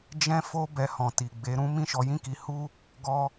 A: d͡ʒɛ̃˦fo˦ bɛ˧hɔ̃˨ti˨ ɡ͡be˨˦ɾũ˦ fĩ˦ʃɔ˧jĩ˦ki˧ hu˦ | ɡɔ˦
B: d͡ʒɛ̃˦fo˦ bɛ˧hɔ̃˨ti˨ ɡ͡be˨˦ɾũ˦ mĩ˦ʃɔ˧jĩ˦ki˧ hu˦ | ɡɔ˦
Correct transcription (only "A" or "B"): B